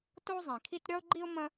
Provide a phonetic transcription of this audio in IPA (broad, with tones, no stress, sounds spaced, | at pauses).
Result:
t o˥ zˤ ĩ˩ kʰ i˥ t ɾʲ ɒ˥ ʊ̯ ɡ͡ǃ i˥ ʊ̯ m ə̃˥